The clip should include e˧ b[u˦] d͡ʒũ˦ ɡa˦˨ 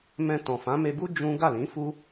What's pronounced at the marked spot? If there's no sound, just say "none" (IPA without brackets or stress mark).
u˦